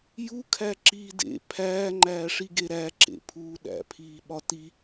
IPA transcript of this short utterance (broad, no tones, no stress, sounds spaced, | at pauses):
j u kʰ æ ǁ iː d ḛ pʰ æː ŋ͡ǃ æː ʂ i ɡ e ɾ æ ǁ ḛ pʰ uː ɗ æ̰ pʰ iː ɓ ɒ t i